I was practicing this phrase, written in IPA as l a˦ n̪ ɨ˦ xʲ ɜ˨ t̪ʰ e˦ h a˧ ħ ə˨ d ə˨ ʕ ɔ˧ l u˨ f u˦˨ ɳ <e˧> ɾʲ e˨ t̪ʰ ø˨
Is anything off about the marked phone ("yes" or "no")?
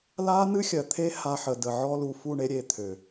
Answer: no